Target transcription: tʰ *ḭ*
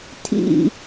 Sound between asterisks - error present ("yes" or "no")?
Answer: no